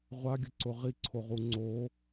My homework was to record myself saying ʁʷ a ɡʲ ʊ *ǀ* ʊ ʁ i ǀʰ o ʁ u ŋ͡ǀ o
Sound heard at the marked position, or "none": ǀ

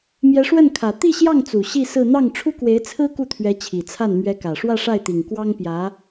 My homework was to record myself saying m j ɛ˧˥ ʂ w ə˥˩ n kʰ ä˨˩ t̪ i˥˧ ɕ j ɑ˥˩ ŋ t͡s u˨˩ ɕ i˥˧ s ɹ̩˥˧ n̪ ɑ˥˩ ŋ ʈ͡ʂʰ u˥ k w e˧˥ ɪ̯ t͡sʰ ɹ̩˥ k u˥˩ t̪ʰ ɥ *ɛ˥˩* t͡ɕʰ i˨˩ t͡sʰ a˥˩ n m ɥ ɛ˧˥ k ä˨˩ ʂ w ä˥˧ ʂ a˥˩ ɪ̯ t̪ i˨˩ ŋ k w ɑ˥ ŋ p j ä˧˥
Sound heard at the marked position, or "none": ɛ˧˥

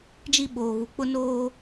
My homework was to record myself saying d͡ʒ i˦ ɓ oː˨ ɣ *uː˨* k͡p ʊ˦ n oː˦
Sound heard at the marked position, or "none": u˨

